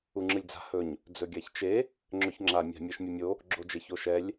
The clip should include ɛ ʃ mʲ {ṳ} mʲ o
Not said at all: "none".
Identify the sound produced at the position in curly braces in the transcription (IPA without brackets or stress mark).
u